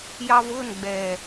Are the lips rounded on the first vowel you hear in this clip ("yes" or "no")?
no